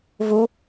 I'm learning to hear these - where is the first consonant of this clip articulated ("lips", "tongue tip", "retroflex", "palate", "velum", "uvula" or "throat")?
lips